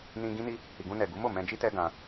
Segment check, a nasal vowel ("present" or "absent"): present